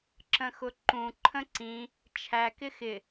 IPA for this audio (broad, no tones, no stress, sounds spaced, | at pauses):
ǁ ə̃ x ʊ ǃ ũ ǃʰ ə̃ ǀ ĩ | t͡ʃʰ æ k ɪ x ɪ